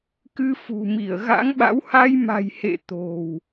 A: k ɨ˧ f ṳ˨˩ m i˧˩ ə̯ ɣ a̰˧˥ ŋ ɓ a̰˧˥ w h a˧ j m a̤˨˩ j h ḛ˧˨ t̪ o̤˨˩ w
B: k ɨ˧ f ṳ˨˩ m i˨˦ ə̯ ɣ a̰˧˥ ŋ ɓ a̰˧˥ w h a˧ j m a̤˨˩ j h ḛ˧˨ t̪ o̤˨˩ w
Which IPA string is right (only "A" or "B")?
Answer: A